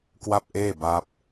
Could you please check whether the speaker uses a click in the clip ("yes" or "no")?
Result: no